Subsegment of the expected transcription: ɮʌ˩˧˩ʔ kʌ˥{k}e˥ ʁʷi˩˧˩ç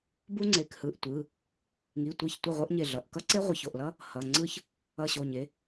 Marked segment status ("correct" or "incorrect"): incorrect